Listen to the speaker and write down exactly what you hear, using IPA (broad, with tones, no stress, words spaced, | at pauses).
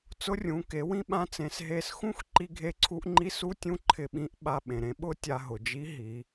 t͡sʊ˧˥rʲũ˩˧ke˩˧ wĩ˥ɓã˧˥t͡sẽ˩˧s ɦe˧sxũ˥x ǃi˧ɡʱe˧ǀʰu˧ʔŋ͡ǃi˧˥ su˧˥tʲũ˧˥ ǃʰɪ˧ɓĩ˧˥ʔ ɓa˧ɓẽ˩ɾẽ˧ ɓʊ˥ tʲa˧ɦʊ˩d͡ʒi˧˥ ɦi˩˧